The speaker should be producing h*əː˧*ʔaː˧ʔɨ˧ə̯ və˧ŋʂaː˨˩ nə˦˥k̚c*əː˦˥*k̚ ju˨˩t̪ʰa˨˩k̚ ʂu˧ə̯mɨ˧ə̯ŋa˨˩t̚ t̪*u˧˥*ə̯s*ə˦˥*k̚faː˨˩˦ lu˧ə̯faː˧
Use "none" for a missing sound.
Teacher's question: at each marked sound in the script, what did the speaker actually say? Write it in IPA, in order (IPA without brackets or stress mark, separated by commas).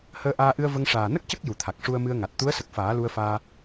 əː˧, ə˦˥, u˧˥, ə˨˩